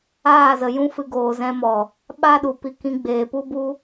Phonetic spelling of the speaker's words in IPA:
aː˦˨zə˨ jũ˦fɨ˧ ɡoː˨zɛ̃˧mɔ˨ | ɓa˦ɗu˨ pi˧ kĩ˧ɡ͡beː˨ pu˦bu˦

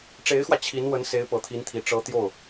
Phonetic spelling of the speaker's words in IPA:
ʈ͡ʂe˧˥ɪ̯xwä˧ t͡ɕʰi˧˥nwə˧˥n se˧˥ɪ̯pɤ˨˩t̪ʰi˧˥nt̪ʰi˨˩ ʈ͡ʂɤ˧˥ t̪jo˥˩ʊ̯

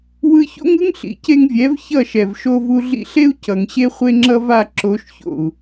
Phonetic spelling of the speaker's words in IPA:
wɯ˧ço̰˦ŋɯ˦ŋ ɬḭ˨ce˧ŋvʲɛ˨˦v çʌ˦˨ʃɛ˨v ʃo˧vu˧ɮḭ˧ɬe˦u̯ cʌ˨ŋɕe˦ χʷe˦ŋ͡ǁʌ˦va˦˨ ǁo˨˦ʃço̰˨u̯

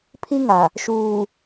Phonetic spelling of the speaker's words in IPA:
pʰi˦ŋa˨ | ʃuː˨

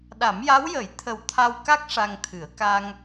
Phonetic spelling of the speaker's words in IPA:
ɗa˨˩˦mja˧˥wjə˨˩˦j t̪ʰə˨˩wt̪ʰa˧wka˦˥k̚ ʂa˧ŋt̪ʰɨ˨˩˦ə̯ ka˧ŋ

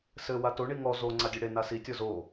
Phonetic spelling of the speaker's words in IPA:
sɘ wato ɳiŋɔ zo ŋ͡ǀadʲɛɽe nasi tʲɔzo

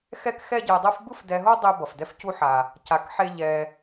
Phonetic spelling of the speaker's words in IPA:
xɛ˥kxɛ˥ɟe˧dˤe˥f bɯ˥fdɛ˧ɦo˥ dˤi˧ bʌ˩fdɛ˧fcu˧ħa˩ | ca˧kħe˥ʎɛ˧

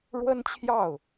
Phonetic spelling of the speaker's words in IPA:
ɻwə˥nt͡ɕʰjɑ˥˩ʊ̯

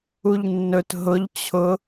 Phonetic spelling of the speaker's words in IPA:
uʎnːɵt ɦʊʎ t͡ɕʰʊ

